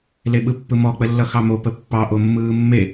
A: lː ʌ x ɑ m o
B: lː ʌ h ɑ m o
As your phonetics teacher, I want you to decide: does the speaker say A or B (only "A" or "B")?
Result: A